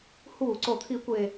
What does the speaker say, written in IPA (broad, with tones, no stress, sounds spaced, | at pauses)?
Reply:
h uː˧˩˧ ǀ o˨˩ t̪ʰ i˧˩˧ kʷ e˨˩